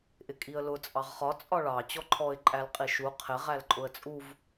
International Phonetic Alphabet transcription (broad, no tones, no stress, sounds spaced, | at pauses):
ʔ ɪ kʼ i ə̯ l ʊ t͡sʼ ɑ ʁ χ ɒ t͡sʼ ɒ ɭ ɑ t͡ɕ ɔ ǃʰ ɔ ɪ̯ ǃʼ æ l qʼ i ʃ u qʰ ɪ ʁ æ l ǃʼ ʊ ə̯ t͡sʼ u v